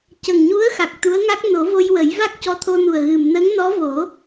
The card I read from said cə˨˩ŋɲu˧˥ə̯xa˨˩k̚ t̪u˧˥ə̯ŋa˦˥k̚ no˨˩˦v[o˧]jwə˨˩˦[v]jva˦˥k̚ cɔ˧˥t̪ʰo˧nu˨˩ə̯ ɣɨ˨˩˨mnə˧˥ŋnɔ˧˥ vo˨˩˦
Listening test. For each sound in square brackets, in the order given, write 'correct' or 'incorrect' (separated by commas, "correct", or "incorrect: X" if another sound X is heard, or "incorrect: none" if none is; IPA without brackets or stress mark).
correct, incorrect: none